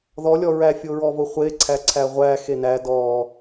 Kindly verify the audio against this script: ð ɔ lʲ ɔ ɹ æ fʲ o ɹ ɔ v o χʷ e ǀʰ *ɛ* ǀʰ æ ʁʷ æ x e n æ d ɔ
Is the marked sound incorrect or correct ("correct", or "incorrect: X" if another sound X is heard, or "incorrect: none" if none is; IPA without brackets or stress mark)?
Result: incorrect: æ